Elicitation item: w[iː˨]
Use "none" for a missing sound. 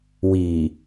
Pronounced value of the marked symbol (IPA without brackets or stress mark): iː˨